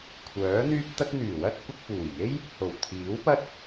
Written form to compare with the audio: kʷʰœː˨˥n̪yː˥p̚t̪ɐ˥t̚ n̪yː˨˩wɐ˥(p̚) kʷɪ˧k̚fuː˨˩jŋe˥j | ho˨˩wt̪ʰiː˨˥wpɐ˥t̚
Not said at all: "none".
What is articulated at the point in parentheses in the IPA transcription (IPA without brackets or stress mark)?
t̚